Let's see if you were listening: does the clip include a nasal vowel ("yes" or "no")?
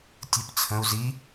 yes